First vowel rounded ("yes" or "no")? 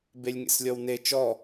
no